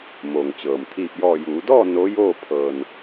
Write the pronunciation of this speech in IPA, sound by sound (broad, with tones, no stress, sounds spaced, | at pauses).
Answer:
m o˩ ŋ t͡ɕ ɤː˩ m t̪ʰ iː˧˩ p̚ j ɔː˧˩ j uː˩˧ d ɔː˥˨ n o˧˥ j oː˥˨ pʰ ɤː˧ n